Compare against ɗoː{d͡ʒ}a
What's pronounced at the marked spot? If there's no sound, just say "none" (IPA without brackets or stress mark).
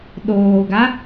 ɡ